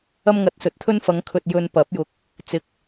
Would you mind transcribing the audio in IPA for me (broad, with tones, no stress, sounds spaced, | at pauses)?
ɐ˥ m ŋ ɐ˧ t̚ s ɵ˨ t̚ t̪ʰ ɵ˥ n f ɐ˨˧ ŋ kʰ ɵ˨ t̚ j ɵ˧ n p ɐ˨˥ p̚ j ʊ˨ k̚ | t͡s ɪ˨ k̚